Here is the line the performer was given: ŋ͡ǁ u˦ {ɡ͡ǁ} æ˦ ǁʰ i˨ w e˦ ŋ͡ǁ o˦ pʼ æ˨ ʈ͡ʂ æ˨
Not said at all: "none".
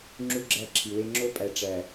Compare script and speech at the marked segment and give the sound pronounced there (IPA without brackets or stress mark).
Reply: ɡ͡ǁ